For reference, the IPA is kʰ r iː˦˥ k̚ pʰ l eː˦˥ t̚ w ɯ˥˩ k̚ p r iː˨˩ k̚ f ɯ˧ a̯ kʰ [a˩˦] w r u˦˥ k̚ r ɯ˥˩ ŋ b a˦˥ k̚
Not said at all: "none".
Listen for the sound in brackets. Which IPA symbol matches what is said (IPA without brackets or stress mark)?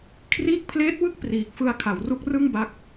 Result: a˩˦